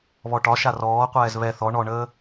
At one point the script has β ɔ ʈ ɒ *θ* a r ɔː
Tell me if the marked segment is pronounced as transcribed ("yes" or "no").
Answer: no